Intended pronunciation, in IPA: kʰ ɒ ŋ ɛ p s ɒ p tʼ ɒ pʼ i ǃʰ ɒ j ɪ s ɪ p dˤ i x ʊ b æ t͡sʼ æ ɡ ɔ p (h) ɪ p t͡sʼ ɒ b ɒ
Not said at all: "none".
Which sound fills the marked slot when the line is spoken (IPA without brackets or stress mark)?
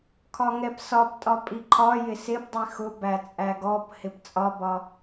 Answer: h